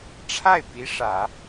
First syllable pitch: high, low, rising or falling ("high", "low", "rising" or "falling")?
falling